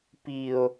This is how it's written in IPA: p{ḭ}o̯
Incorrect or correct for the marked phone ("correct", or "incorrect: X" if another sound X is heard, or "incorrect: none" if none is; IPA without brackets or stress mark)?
incorrect: i